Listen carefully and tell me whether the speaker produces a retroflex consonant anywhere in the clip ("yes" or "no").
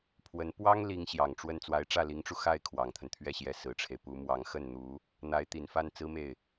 yes